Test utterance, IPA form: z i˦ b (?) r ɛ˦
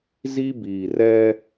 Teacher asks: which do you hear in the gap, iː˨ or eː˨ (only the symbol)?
iː˨